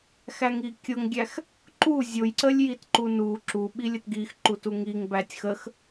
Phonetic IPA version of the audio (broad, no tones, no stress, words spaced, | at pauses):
xæŋikʲʊŋɡʲæx | ǃu zʲʊjǀəlʲ jitǃunu ǁu ɓilʲətɡixǃu tuŋiŋ bætʲxəx